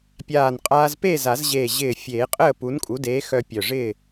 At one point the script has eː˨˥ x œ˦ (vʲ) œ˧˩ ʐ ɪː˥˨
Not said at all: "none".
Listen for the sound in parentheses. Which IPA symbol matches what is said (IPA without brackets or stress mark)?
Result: pʲ